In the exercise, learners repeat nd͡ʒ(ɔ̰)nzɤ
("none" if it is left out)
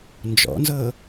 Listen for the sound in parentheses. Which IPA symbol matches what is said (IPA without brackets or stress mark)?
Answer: ɔ̰